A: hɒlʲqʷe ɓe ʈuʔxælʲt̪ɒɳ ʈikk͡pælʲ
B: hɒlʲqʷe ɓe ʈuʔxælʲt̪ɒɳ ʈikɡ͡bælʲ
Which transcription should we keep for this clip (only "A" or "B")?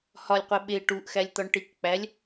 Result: A